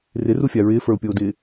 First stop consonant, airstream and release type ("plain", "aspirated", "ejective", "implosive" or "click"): plain